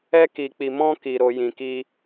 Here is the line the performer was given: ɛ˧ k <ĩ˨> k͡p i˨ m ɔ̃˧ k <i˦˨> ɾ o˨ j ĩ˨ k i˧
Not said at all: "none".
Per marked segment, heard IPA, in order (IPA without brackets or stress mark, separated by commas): i˨, i˨